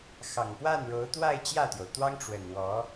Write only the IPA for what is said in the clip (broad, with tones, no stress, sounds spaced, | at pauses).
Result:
x ɑ˨˩ ŋ p w a˥˩ n ɻ o˧˥ ʊ̯ t̪ w a˥˧ ɪ̯ t͡ɕ j ä˥˩ t̪ j o˩ ʊ̯ t̪ w ɑ˥ ŋ ʈ͡ʂ w ə˨˩ n w ɔ˧˥